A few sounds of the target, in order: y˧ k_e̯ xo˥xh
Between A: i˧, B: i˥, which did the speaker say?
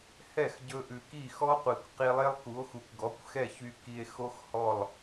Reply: A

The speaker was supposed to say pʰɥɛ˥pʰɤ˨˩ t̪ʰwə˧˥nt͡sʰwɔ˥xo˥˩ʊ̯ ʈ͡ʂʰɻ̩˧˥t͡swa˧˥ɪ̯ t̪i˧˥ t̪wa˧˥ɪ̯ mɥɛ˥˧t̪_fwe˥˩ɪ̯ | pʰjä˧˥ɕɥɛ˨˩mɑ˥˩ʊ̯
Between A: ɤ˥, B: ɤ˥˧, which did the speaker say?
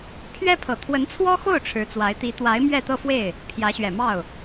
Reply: B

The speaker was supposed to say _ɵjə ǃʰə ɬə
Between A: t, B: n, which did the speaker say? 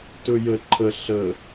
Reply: A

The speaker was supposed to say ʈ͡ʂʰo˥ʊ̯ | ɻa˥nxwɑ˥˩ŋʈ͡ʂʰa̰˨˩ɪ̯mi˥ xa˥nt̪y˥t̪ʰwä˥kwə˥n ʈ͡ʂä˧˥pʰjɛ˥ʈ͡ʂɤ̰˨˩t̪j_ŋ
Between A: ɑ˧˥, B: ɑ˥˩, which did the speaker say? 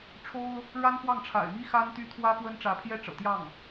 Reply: B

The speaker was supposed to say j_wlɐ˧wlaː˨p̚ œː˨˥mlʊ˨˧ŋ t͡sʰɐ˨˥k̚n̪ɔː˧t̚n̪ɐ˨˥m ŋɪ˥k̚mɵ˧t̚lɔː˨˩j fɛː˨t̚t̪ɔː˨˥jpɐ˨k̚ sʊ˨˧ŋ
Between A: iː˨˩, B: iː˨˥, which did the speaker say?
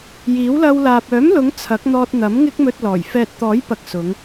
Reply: B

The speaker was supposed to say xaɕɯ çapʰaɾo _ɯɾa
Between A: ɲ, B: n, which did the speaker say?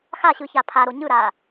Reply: A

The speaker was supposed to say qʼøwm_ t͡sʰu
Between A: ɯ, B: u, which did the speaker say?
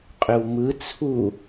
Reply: A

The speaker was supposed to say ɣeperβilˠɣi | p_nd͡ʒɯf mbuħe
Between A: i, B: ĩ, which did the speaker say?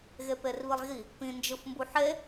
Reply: B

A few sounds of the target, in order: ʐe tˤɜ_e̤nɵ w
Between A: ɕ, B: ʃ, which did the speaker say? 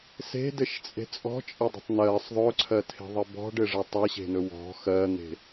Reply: A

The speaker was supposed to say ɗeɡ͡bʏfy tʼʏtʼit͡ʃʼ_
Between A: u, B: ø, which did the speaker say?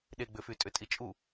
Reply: A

